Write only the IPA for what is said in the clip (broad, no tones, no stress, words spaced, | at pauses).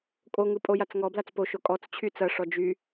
kʼoŋɯ pʼojat͡sŋɔblat͡s poʃo kʼɔt͡s t͡ɕʰyt͡sɐʂɔ d͡ʒy